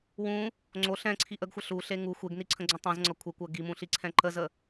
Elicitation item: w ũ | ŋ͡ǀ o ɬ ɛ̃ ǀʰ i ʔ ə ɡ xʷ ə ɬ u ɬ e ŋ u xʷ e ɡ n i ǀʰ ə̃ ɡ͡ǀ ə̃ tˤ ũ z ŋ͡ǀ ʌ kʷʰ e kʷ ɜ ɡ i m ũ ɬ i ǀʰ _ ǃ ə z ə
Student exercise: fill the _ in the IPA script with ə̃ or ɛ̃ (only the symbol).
ɛ̃